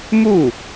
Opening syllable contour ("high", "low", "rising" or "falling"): falling